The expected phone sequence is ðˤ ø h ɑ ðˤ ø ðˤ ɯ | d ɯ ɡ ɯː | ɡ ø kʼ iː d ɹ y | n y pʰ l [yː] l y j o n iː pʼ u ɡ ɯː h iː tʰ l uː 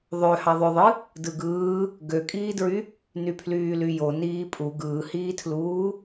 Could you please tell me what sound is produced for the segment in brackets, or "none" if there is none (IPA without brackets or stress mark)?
yː